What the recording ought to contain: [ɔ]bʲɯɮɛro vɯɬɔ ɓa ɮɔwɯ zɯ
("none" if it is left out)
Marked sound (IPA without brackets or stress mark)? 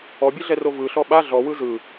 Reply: ɔ